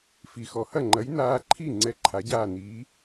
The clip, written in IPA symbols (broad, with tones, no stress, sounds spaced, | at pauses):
f i˩ x ɔ˩ h ɐ˥˩ ŋ͡ǃ ɐ˩˥ j n aː˧ ǃʰ i˥˩ ŋ͡ǀ ɛ˧ ǃʰ a˩˥ ɟ aː˥˩ n iː˩˥